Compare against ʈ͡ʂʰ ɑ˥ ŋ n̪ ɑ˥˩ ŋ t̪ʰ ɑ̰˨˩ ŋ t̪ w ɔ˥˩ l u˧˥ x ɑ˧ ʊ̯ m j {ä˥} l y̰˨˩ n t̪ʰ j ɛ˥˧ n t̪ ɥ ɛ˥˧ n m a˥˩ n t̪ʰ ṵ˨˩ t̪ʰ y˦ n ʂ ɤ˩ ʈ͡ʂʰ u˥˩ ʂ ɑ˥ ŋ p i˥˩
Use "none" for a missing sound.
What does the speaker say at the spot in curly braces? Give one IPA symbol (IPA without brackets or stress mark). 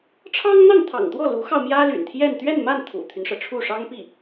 ä˥